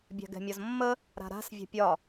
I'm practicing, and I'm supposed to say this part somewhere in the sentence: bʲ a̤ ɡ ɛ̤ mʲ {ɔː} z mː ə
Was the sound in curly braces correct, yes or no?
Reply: no